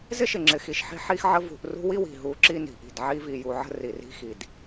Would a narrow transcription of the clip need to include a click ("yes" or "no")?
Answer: yes